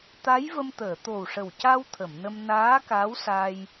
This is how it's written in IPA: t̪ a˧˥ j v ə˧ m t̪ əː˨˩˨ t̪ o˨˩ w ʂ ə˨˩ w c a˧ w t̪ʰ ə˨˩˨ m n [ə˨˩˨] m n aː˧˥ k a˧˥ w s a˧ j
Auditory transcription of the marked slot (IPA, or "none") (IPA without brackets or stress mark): ə˧